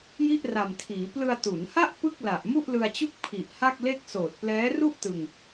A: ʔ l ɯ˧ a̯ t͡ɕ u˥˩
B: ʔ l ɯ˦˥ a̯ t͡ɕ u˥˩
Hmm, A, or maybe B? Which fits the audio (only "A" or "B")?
A